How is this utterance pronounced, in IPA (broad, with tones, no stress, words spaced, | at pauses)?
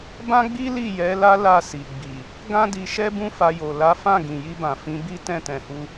bã˦ɡ͡bi˦ li˦˨jɛ˨˦la˦ la˦˨ si˨ɡ͡bi˨ | ɡã˦ di˧ʃɛ˦ bũ˦fa˧jo˨ la˨˦fã˦˨ ɡĩ˨ji˧bã˨ fĩ˨˦bi˦ tɛ̃˦˨tɛ̃˨hu˧